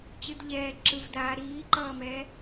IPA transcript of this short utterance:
t͡ɕɯdʎɛː ǁɯvdaː ɾiːǃʌːmɛː

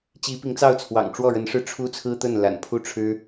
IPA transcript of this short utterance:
t͡ɕi˧˥pi˧˥ŋt͡sɑ˥˩ʊ̯t͡sʰwɑ̰˨˩ŋ ʈ͡ʂwɔ˥˩ɻə˧˥nʂɻ̩˥˩ ʈ͡ʂʰu˥t͡sʰɹ̩˥t̪ə˥˩n la̰˨˩npʰu˥˩ʈ͡ʂʰɻ̩˥

